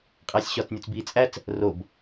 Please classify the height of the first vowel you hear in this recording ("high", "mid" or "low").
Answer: low